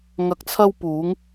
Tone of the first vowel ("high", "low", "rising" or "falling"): low